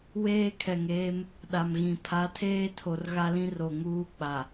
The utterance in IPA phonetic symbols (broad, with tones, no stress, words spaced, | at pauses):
weː˦kʰɛ˨ŋeː˦m | ɗa˨mɣĩ˨ pʰa˨˦tʰeː˦ tʰo˨rɣa˦lĩ˦ ro˨ŋuː˦ k͡pa˨